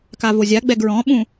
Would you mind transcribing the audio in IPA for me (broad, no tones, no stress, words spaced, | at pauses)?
kavozʲaɡ͡bɛɡ ɹɔ̃ɓũ